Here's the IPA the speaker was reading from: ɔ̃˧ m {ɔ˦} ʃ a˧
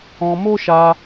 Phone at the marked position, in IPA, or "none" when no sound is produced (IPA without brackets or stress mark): o˦